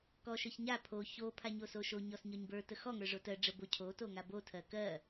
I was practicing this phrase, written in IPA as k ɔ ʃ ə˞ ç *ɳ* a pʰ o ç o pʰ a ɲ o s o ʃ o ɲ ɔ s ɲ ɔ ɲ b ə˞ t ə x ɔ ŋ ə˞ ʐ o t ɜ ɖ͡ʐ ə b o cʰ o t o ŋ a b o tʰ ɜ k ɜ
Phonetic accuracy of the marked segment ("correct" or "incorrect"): incorrect